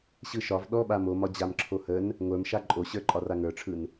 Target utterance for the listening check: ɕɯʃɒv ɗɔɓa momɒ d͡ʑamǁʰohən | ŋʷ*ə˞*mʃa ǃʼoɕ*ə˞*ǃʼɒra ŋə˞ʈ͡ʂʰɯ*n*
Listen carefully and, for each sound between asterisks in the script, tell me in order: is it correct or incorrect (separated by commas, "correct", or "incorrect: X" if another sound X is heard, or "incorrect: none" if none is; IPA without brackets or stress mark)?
correct, correct, correct